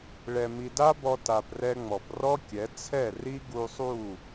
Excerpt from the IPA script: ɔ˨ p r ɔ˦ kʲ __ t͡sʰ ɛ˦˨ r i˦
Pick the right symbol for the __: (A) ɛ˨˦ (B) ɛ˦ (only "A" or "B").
A